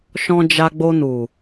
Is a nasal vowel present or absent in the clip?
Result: present